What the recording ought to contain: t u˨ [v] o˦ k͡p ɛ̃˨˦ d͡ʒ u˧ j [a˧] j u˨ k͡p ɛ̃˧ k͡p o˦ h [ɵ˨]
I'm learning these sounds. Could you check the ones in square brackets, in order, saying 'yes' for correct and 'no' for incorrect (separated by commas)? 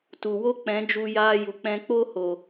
no, no, no